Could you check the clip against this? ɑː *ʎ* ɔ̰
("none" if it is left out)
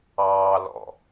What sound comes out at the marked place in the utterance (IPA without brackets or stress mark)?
l